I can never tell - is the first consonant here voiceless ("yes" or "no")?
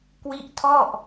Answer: yes